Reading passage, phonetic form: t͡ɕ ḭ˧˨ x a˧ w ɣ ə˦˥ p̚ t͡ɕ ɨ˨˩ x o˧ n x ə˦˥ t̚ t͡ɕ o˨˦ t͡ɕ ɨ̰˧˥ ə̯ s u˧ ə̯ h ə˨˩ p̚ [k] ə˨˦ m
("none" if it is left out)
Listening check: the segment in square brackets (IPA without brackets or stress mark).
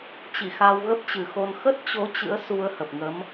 ŋ